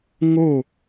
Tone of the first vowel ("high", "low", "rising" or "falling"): falling